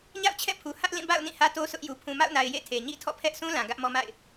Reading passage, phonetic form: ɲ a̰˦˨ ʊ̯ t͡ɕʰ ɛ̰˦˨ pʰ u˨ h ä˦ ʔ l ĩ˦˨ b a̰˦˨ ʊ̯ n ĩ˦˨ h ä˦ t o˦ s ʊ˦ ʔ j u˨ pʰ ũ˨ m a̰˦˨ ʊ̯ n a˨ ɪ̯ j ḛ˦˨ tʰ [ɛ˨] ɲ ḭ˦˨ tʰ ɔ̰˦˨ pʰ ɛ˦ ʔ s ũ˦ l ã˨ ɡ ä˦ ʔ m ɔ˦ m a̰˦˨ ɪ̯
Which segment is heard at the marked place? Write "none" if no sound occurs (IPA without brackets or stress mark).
e˨